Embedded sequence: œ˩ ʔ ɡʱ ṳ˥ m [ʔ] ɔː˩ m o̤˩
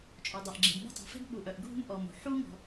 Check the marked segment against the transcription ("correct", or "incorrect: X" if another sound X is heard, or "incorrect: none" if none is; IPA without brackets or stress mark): correct